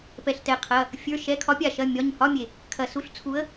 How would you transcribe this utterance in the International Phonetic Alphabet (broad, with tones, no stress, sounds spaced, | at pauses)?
p ɛ˩ ɬ t ɛ˩ qʰ ɐ˩˧˩ | fʲ ə˞˩˧˩ ʃ ɛ˩˧˩ kʰ ɒ˨˥ pʲ a˩ ʃ ɐ˩˧˩ mʲ ɒ˩˧˩ ɲ h ɒ˧˥˧ mʲ e˩ | kʰ ɐ˩ s u˨˥ ɬ t͡sʰ u˨˥ ə̯